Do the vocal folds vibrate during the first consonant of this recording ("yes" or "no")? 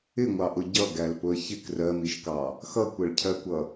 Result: yes